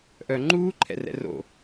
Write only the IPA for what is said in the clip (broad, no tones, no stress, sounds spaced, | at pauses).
ʔ œ ŋ͡ǃ uː ǃʰ ɛ̰ r ɛ̰ r o̰